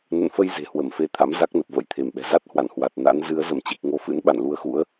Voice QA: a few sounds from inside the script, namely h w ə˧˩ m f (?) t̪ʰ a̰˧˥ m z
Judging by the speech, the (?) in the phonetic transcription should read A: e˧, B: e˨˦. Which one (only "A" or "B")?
A